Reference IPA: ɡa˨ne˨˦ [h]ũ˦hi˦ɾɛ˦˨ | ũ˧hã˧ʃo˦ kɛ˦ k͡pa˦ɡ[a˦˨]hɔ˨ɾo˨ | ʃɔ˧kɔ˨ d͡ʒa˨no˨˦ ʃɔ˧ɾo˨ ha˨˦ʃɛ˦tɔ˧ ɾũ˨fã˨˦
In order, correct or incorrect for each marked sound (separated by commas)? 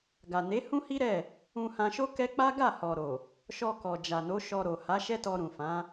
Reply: correct, correct